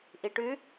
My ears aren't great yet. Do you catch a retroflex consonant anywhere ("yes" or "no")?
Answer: yes